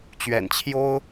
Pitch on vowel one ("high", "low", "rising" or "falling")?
low